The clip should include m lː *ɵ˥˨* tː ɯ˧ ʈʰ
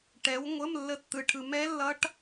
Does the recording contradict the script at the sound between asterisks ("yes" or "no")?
yes